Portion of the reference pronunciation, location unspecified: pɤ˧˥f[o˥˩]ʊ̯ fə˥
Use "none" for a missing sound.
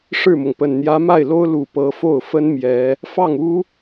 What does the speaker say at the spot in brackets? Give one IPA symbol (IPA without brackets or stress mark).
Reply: o˥˩